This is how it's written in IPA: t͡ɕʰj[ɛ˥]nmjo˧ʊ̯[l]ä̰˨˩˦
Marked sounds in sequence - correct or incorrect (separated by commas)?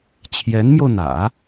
incorrect, incorrect